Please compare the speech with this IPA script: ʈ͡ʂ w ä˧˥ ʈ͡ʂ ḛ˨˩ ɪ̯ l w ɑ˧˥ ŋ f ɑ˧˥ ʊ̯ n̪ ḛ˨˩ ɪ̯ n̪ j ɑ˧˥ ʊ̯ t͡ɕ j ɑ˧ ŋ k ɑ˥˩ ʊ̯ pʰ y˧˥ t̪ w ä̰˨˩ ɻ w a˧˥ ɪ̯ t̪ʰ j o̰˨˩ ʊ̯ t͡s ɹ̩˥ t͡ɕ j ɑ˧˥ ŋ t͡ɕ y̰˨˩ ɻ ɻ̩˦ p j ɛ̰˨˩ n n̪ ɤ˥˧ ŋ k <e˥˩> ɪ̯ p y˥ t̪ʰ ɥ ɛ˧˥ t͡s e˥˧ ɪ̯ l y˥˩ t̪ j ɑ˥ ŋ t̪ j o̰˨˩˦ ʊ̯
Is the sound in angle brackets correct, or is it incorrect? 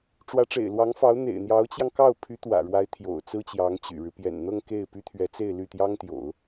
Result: correct